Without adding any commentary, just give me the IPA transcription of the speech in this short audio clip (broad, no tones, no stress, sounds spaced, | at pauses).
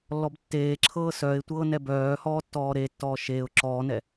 lː ɔ b tː eː ǁʰ ɤː s œ ɪ̯ tʷ ɤː n ɛ b œː h ɔː tː ɔː ɾ e tː ɔː ʃ eː ʊ̯ ǁ ɔː n ɛ